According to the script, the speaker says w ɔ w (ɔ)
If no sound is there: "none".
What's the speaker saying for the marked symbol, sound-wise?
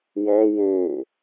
o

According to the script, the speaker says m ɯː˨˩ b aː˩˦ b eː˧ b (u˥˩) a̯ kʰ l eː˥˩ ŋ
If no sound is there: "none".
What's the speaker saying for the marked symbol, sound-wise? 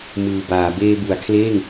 u˩˦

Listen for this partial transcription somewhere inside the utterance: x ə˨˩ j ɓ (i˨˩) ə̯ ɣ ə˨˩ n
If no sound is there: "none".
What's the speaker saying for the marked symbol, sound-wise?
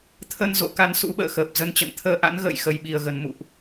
i˨˩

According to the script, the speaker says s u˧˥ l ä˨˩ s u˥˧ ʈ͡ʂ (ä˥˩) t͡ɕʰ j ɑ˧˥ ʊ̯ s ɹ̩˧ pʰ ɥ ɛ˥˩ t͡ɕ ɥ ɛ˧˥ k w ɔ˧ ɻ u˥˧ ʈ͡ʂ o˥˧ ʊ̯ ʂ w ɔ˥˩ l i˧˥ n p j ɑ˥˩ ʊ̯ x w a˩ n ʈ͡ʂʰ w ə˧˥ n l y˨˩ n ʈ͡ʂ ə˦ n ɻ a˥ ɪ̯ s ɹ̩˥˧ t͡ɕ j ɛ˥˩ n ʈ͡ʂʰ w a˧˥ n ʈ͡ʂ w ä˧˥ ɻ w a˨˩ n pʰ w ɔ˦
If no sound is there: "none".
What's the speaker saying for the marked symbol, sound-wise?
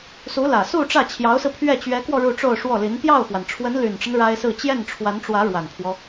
ä˥˩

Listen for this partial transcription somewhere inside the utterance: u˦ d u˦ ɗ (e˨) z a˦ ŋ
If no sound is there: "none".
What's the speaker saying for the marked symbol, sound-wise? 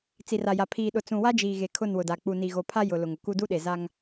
e˨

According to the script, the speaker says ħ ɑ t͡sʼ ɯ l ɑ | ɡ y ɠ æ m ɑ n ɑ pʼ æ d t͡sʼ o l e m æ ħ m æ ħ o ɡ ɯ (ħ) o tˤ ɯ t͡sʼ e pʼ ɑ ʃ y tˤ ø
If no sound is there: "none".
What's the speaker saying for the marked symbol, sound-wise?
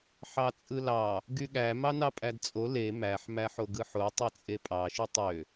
ħ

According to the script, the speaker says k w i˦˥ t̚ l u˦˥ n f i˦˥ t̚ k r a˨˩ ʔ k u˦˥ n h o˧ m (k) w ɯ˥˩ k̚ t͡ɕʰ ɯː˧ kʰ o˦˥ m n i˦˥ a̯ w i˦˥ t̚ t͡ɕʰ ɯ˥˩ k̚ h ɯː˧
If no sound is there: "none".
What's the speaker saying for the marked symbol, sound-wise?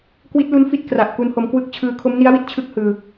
k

